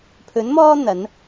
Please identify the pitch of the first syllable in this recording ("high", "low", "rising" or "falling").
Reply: rising